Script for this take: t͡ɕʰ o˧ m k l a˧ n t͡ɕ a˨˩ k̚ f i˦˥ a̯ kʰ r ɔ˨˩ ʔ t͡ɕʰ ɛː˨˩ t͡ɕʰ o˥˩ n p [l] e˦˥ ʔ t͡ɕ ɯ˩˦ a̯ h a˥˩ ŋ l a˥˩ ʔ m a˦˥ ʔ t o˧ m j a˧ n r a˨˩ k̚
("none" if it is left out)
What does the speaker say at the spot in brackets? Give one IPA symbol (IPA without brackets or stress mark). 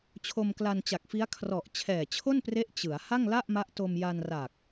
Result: r